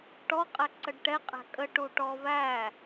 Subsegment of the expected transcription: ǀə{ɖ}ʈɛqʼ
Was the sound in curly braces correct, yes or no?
yes